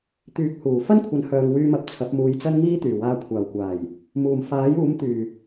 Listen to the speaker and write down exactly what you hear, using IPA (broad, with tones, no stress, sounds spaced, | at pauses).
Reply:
t̪ yː˨˥ k̚ h uː˨˩ f ɐ˥ n kʷʰ ɐ˨˥ n h œː˨ ŋ w yː˧ m ɐ˨ p̚ t͡sʰ ɐ˨˥ p̚ m uː˧ j t͡s ɐ˥ n ŋ iː˥ t̪ yː˨˩ w aː˧ kʷʰ aː˨˩ w kʷ aː˨˩ j | m uː˨˩ m f aː˨˥ j uː˨˥ m t̪ yː˨˩